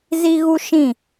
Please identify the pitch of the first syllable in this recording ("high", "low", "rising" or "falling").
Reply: high